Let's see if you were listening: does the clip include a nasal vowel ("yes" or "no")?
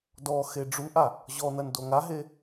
no